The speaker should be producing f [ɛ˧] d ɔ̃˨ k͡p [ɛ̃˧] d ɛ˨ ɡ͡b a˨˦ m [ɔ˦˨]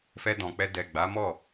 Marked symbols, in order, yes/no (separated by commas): yes, no, yes